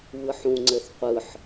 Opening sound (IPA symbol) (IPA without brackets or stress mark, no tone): β